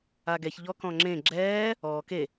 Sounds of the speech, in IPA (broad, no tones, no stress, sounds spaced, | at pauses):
a ɡ ɛ ç ʎ ɔ k ɔ̃ ŋ͡ǁ ẽ ɡ͡ǁ ɛː | ɔː k e